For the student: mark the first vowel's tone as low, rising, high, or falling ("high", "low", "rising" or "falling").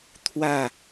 falling